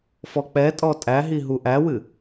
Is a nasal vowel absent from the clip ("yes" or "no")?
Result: yes